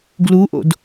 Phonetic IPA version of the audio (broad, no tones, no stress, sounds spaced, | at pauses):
ɡ l u ʔ o̰ d